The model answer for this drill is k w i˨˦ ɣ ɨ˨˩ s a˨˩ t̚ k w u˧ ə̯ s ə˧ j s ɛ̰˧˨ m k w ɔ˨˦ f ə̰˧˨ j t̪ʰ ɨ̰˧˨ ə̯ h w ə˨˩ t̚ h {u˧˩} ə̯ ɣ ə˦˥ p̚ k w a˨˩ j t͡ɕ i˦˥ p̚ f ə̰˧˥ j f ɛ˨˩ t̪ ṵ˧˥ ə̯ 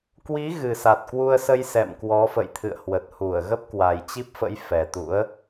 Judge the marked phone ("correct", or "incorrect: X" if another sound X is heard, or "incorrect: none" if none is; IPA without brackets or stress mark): correct